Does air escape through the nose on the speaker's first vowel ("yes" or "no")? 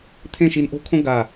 yes